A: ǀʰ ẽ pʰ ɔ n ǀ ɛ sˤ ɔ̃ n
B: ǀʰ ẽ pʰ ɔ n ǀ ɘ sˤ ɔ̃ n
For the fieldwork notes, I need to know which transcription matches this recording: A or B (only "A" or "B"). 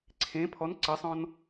B